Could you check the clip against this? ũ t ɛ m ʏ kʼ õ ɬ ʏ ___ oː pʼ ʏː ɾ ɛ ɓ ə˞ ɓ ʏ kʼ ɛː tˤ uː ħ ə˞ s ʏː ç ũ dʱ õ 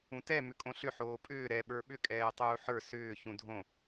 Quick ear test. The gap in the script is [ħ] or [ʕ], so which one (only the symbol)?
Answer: ħ